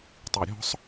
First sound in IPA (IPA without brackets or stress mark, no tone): tˤ